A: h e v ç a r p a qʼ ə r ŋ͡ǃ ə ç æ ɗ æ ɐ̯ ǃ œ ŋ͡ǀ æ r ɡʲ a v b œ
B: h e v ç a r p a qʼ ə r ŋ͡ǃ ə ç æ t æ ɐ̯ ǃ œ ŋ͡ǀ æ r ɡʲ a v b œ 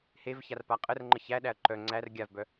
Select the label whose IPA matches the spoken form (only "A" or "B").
A